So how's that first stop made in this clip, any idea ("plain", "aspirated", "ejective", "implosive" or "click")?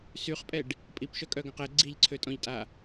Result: ejective